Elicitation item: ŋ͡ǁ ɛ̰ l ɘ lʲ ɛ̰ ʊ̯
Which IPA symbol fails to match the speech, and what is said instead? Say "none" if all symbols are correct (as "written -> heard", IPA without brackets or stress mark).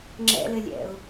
none